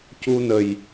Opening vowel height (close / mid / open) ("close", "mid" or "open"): close